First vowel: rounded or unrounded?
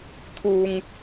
rounded